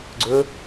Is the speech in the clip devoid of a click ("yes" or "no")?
no